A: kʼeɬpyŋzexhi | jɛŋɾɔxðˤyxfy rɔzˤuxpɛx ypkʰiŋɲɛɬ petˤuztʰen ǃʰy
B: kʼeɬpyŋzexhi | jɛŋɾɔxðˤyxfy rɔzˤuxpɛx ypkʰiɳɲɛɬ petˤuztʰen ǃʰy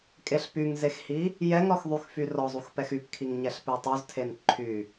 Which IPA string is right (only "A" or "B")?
A